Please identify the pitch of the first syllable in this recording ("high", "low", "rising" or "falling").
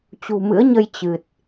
low